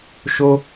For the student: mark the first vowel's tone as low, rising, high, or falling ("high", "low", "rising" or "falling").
high